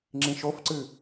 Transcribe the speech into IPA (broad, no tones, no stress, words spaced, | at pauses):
ŋ͡ǁĩʃofǀɨ